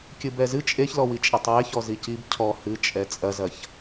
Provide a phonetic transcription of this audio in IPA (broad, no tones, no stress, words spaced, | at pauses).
kʲɨbɛzɨ t͡ʃʼeçlɔwi t͡ʃʼɛtˤweçɔ zicib cʰɔ hɨt͡ʃʼɛ t͡sʼɐzɐç